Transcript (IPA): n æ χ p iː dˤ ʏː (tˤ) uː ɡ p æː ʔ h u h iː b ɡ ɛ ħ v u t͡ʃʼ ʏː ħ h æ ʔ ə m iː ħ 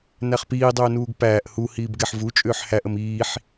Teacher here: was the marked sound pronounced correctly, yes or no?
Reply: no